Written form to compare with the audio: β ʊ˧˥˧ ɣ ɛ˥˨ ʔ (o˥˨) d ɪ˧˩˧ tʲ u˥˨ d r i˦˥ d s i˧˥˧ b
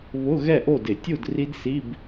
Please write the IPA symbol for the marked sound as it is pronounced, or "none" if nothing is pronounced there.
o˥˨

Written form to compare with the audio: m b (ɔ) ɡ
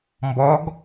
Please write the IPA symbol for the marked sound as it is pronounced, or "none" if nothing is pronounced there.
ɔ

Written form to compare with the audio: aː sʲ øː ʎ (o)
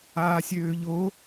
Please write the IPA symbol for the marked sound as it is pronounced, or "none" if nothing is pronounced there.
o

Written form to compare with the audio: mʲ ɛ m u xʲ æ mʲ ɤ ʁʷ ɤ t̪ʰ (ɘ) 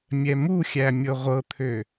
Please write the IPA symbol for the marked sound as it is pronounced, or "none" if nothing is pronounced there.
ø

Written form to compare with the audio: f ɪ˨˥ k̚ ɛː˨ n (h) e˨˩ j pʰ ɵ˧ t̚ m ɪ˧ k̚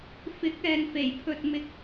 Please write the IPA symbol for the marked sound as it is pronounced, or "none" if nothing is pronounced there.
f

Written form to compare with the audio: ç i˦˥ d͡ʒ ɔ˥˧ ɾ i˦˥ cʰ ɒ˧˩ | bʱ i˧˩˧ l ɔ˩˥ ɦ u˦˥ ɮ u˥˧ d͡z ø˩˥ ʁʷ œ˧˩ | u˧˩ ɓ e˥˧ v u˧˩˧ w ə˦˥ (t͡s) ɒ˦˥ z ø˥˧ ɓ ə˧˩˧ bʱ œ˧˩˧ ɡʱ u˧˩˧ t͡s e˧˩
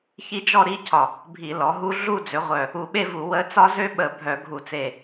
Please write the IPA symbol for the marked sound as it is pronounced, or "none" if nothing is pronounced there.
t͡s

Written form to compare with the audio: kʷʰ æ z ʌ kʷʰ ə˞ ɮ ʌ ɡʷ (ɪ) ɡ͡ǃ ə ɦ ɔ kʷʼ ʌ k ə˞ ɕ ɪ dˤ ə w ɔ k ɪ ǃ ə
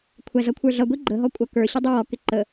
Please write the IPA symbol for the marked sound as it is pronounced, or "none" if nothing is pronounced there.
i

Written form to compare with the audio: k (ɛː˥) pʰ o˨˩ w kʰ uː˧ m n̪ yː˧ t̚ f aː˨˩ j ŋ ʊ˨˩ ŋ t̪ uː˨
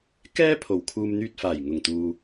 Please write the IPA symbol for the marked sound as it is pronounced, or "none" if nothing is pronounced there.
ɛː˥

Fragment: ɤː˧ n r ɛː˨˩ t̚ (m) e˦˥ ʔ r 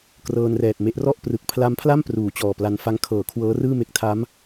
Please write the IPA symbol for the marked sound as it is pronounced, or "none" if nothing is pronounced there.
m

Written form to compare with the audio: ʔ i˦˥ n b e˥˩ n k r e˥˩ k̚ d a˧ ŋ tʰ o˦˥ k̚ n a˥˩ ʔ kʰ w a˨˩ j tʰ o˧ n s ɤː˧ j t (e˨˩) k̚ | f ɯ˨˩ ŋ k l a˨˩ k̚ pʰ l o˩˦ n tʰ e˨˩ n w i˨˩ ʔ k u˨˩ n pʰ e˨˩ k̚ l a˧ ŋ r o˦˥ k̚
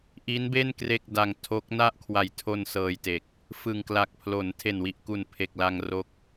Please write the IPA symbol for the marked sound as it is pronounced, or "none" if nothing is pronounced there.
e˨˩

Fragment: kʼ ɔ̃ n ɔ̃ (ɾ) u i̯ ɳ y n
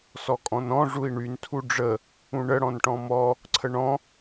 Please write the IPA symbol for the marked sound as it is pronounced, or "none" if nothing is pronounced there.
ʐ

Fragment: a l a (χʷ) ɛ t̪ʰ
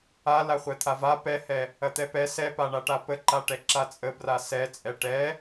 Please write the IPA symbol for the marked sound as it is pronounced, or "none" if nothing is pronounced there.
χʷ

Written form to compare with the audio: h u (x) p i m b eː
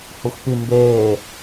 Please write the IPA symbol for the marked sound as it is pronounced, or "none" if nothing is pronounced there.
x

